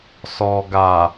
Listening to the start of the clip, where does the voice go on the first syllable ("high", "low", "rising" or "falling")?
low